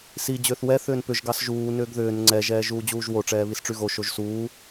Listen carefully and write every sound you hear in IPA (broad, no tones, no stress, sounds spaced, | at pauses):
s i d͡ʑ ʏː θ w ɛ θ ʏː n p ʏ ʒ ɡ ɑ s ʒ uː n ʏː ɡ ð ʏː n ŋ͡ǀ ɛ ʒ ɛː ʒ uː d͡ʑ uː ʒ w o ʈ͡ʂ ɛː β i s ʈ͡ʂ y ɣ o ʃ o ʒ s uː